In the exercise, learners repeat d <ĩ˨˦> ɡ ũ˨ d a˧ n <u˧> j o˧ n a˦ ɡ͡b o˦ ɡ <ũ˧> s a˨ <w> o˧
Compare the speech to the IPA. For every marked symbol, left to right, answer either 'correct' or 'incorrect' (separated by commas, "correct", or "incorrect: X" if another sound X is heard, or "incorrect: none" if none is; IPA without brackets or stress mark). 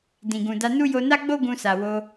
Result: incorrect: ĩ˨, incorrect: u˦, correct, correct